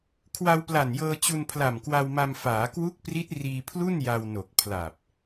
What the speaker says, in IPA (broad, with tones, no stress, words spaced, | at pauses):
kʰwa˧wpla˨˩njɤː˧ t͡ɕu˧npʰla˨˩mkwa˧wma˧m faː˩˦kwu˦˥k̚pri˦˥t̚ riː˧pʰlu˥˩nja˧w no˨˩k̚pʰla˨˩p̚